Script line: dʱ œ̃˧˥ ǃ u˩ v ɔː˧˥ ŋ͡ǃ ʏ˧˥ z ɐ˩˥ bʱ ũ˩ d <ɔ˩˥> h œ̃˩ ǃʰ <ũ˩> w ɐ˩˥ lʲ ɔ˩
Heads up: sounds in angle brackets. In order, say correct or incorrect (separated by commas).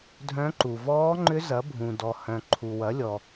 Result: incorrect, incorrect